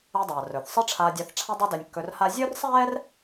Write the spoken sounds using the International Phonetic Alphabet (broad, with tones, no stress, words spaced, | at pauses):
a˧dˤaː˩ rɵ˩θsˤə˥ʈ͡ʂʰaː˧dʲa˧θ ʈ͡ʂʰa˥dˤa˥dɛ˧nʲ kːɵ˧rha˥ zʲɵː˥rsˤɛː˥r